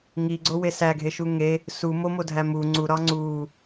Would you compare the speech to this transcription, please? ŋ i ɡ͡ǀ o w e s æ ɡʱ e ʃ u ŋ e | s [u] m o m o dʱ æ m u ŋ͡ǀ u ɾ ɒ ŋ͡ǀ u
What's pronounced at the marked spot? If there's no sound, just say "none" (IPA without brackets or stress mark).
u